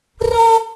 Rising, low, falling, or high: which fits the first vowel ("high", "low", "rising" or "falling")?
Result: high